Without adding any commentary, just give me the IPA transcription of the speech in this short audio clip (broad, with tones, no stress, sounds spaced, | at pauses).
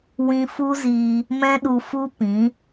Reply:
w ĩ˧ f u˦ z iː˧ | m ɛ̃˦ ɗ u˧ f u˦ p ĩ˨˦